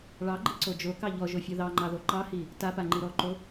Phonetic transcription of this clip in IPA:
ɭ ɑ ɡ͡ǃ i ǀ o d͡ʒ o k ɑ ʎ ɔ ʒ o fʲ o ð ɑ ŋ͡ǃ ɑ ð o ǃ ɑ h i | t a p a ŋ͡ǃ i ɾ ɔ ǃ o

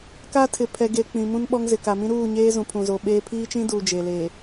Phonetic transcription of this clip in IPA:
k a˦ tʰ ɪ˨ pʰ ɛ˨ ɡ e˨ k͡p ĩ˨ m ũ˦ n ɓ ɔ˦ ŋ z ɪ˨ k a˨ m ĩ˦ ɾ uː˦˨ ɲ eː˦ z ũ˨ pʰ ũ˨ z o˨ ɓ eː˦ pʰ iː˦ t͡ʃ ĩ˦ d uː˨ d͡ʒ e˨ l eː˨

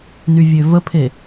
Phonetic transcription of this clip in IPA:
n y vʲ ø v ə pʰ e

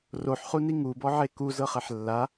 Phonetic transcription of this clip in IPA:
r o ħ χ u n i ŋ u b ɔ ʕ e k u z ɤ χ ɛ ħ lː a

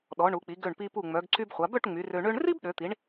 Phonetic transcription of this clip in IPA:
ɗ ɔ˩˧ ɳ u˩˧ k͡p i˩˧ ɡ ø˧˩ ɳ p i˧ p u˧˩ ŋ͡m œ˩˧ ɡ ǀ y˧ b χʷ a˩˧ b œ˥˧ ʈ ŋ͡m y˩˧ r ø˧ ɳ ø˥ ɳ r i˥ b ɗ ø˩˧ t̪ i˩˧ ɳ

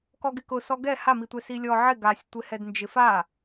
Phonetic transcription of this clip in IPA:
k ɔ ɡ ɪ k ʊ s ɔ ɡ ɛ h a m i tʷ ɛ s i lʲ ɔ ʕ ɪ ɡ a sʲ tʷ ɪ h ɛ d n d͡ʒ ɪ f a

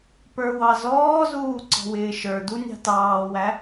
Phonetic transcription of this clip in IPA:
p ə˞ w ɑ z ɔː z uː ǀ ɔ̤ w ɪː ʃ ə˞ d u nʲ ɑ̤ t ɑː w æ

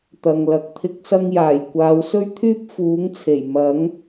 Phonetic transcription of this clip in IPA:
t̪ ɐ˨ ŋ l ɐ˨˥ k̚ t̪ʰ ɪ˨˥ k̚ s ɐ˧ ŋ j aː˨˩ j kʷ aː˨˧ w s ɵ˥ ɥ t̪ʰ yː˥ p̚ f uː˨˥ ŋ t͡sʰ e˨˩ j m ɐ˨˥ ŋ

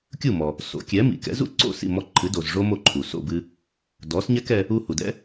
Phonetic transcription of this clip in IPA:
kʲ u˥˩ m ɔ˩ | s o̰˩˥ kʲ ɛ˩˥ m ḭ˩ k ɛ̰˩˥ z ṵ˥ ǀ o̰˥˩ s ḭ˥˩ m ɔ˧ ǃʰ ɨ˩˥ d o˩ z ʐ o˥ m o˥˩ ǃʰ u˩ s o̰˥˩ b ɨ˧ | d ɔ˩˥ s ɲ ɛ˥ k ɛ˧ | u˧ h u˩ d ɛ̰˥

